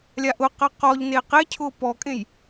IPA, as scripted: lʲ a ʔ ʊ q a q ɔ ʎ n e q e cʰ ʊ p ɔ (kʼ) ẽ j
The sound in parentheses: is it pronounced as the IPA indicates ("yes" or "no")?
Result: yes